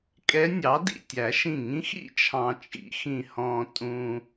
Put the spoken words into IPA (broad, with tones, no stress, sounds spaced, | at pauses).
kʼ ɛ˧˥ nʲ ɑ˩˥ d ḭ˧˩ tʲ æ˨˩˦ ʃ ĩ˧˩ ŋ ĩ˧˥ x ḭ˥˨ t͡ʃʰ ɑ̃˧ t͡ʃʼ ḭ˨˩˦ x ĩ˧ h ɔ̃˧ tʼ ũ˧